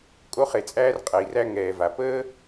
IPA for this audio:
kʼ o˥ χ e˩ t͡sʼ æː˥ r qʼ ɛ˩ i̯ r æ˥ ŋ ɛː˩ v a˩ p əː˥

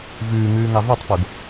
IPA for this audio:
v ʉː ŋ ʉː ŋ ɑ v e tˤ f o ɡ

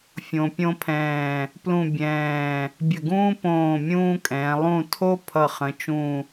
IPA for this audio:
fʲ õ˧ pʲ õ˥ pʰ ɛ̃ː˧˩ | p l ũ˥˧ bʲ ɛ̃ː˧˩ | bʲ ə˧˩ ɡ ũː˥ p õː˧˩ mʲ ũː˥ kʼ ɛ̃ː˩˧ lˠ ũ˥˧ tʰ o˥ pʰ ʌ˧˩ χ ə̃˩˧ t͡ʃ ũ˧˩

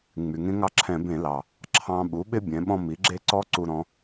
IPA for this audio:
ŋ͡m y˩ ŋ ẽ˥ ŋ ɑ˥ ǁʰ ɛ̃˧˩˧ b ẽ˧˩˧ l ɑ˩ | ǁʰ ɑ̃˧ ɓ u˩˥ ɓ ɪ˥ bʲ ɛ̃˩˥ ɓ ɔ̃˥ m i˩˥ ɡ͡ǁ e˥ ǀ ɔ˥ ǀ u˧ ɾ ɔ̃˧

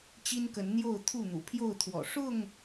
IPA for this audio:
t͡ɕ i˦ n k ə˨˦ n n̪ j o˥˨ ʊ̯ t̪ʰ u˥˨ n̪ ṵ˨˩ pʰ j o˥˨ ʊ̯ t̪ʰ w ɔ̰˨˩ ʂ ʊ˥˨ ŋ

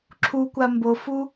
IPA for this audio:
ǁʰ u kʷ a m b o f u

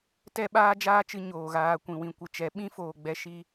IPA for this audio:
t ɛ˦ ɓ aː˦ d͡ʒ aː˦ t͡ʃ ɨ˧ ɲ oː˨ ɣ aː˧ kʷ ĩ˨ w ĩ˨ kʷ ɨ˨ t͡ʃ ɛ˨˦ ɓ ĩ˦ f oː˨ ɡ͡b ɛ˧ ʃ i˧

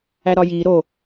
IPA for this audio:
æ ɾ ɒ j i ɾ o

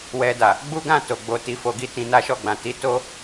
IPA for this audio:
w ɛ˧ d a˨ | ɡ͡b u˦ ɡ ã˦˨ t o˨ ɡ͡b o˧ t i˧ f o˧ ɡ i˦ t ĩ˧ n a˦ ʃ ɔ˦˨ ɡ͡b ã˨ t i˧ t o˦

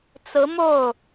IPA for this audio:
t͡s ɹ̩˧˥ m o˥˩ ʊ̯

